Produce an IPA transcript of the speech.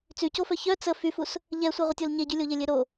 t͡sycofœ çœ t͡sə fyfus | ʎɛsʷeʁʷətʲol ɲeɟylʲoʎe lʲeɾo

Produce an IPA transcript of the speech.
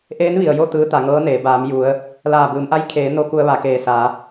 ʔeː˧˥nʋi˩ə̯jo˥˨ t̪ɯː˧˥t̪a˩˧ŋɤː˧˥neː˩˧ baː˩˧m ju˩˧ə̯ | laː˧˩bɯː˩˧mʔa˧˥j kʰeː˩˧ no˧˥ku˧ə̯ʋa˩keː˧˩ sa˩˧

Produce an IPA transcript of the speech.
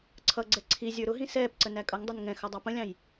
ǀʰʌɡ͡ǀɛ ǀʰi zʲə˞ɾʊɦĩ sɛːpǀə nækʼʌŋdˤɪn ŋɛ̃xʌ dˤɑpə̃lʲɑ̃j

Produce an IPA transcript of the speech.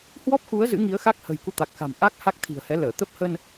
hwɔ˦˥p̚xu˨˦ə̯ zɨ̰˧˥ŋi˨˦ə̯xa˦˥k̚hə̤˨˩j ku˧t̪a˨˩k̚xa̤˨˩m ʔa˦˥k̚ ha˦˥k̚t̪ʰi̤˨˩ə̯hɛ˨˦ ləː˧˩ t̪ə˦˥p̚hə˧n

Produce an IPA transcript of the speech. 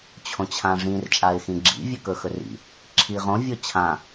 t͡ɕʰõt͡ɕʰãʐĩr t͡ʃʼaɪ̯xĩɡ͡ǁḭ vʲʉkɵxɵrḭ | ǁʰiʁõ vʲot͡ɕʰã

